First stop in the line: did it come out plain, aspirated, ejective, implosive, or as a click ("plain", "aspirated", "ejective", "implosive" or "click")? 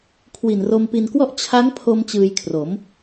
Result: aspirated